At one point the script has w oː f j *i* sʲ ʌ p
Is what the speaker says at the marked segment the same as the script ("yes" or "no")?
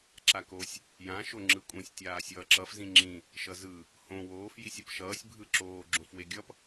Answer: yes